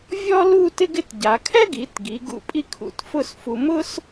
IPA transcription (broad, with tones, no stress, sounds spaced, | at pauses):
vʲ ɔ˥ l u˥˧ t ɪ˥ ɡ ɪ˥˧ t ɟ a˩˧ kʰ ɛ˥ ɡ i˩˧ t ɡ i˩˧ ɡ ṵ˧˩ pʼ i˥˧ kʰ ṵ˧˩ t f ʊ˥˧ s f u˧ m ʊ˥ s